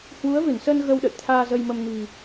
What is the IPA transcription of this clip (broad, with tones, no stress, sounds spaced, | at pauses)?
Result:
h w u˨˦ ə̯ v ɨ˧˩ n s əː˧ n ɣ ə˧ w ɗ ə̰˧˨ j t̪ʰ aː˧ z ə˧ j m ə˧ m n i̤˨˩